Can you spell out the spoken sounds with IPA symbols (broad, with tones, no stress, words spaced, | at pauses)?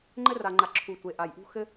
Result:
ŋ͡ǃɘ˦ra˨ŋ͡ǃa˨ ǁʰu˨tʷe˨ʔa˨jʔṳ˦ xɘ˦